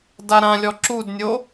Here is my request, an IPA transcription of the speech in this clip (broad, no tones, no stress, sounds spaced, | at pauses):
d a ɾ ã lʲ ɔ ǁ u d nʲ o